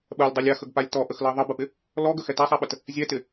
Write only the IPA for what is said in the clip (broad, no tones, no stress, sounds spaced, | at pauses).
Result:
ɓ ɜ lʲ dˤ ɜ lʲ a x ə ɡ p a lʲ t ɔ ʔ ə x l ɜ ðˤ ə b ə p ɪ | l ɔ ɡ ə x ɛ t a sˤ a ɓ ə t | zʲ ɛ t ɪ